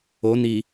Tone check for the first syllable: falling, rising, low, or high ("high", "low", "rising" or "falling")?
rising